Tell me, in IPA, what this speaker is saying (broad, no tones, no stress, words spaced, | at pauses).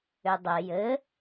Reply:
ʏdˤɘ jɘ